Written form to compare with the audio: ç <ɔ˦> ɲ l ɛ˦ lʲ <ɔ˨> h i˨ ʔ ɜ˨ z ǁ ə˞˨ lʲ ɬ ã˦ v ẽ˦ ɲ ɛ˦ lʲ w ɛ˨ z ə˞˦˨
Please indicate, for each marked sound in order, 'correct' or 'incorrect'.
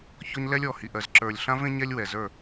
correct, correct

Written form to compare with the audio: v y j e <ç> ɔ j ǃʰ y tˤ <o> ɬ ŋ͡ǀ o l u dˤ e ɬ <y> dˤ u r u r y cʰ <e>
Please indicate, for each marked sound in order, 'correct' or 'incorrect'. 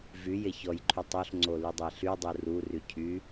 correct, correct, correct, incorrect: y

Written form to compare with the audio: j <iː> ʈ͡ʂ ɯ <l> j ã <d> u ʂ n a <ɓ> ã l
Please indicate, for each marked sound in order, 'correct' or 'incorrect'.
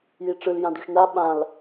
incorrect: i, correct, correct, correct

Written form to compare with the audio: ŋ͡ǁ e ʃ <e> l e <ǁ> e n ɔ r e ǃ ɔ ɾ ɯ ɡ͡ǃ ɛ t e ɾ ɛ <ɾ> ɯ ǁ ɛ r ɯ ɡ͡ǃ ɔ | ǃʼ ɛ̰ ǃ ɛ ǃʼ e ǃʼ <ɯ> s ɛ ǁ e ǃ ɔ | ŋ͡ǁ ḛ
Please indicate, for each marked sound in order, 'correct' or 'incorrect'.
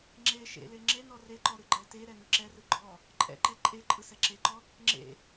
incorrect: ḛ, incorrect: ŋ͡ǁ, incorrect: n, correct

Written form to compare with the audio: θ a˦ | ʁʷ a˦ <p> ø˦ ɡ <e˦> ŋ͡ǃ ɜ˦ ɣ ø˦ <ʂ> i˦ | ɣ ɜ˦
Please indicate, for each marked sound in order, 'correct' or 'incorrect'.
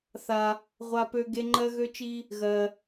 correct, correct, incorrect: t͡ʃ

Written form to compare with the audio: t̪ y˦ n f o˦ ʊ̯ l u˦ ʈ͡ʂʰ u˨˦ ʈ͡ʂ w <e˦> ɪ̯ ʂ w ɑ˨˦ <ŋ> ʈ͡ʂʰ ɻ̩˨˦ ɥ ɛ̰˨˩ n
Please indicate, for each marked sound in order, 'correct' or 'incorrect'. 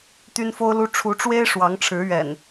correct, correct

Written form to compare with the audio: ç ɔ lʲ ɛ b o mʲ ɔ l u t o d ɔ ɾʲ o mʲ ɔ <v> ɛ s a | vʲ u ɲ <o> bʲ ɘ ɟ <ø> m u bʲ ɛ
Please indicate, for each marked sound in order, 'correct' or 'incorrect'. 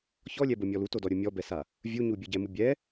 incorrect: b, incorrect: u, incorrect: ɛ

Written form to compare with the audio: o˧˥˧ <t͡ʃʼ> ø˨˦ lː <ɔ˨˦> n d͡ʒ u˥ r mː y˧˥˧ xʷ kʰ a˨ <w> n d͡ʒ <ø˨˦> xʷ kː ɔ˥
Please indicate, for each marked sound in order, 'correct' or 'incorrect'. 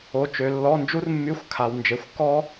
incorrect: t͡ʃ, incorrect: ɔ˧˥˧, correct, incorrect: e˨˦

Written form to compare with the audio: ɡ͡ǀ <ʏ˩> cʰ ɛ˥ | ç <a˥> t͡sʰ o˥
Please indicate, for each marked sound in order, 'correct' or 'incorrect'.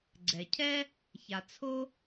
incorrect: ɛ˩, incorrect: a˩

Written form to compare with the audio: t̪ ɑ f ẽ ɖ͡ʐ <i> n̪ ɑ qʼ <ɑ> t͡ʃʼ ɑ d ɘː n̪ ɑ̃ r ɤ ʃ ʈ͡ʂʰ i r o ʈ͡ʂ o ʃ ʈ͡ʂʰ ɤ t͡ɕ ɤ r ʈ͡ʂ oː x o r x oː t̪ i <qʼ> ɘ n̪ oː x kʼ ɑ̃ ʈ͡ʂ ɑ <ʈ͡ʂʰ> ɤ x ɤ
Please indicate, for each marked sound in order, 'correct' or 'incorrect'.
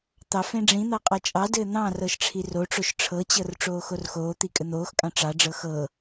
incorrect: ĩ, correct, incorrect: kʼ, incorrect: ɖ͡ʐ

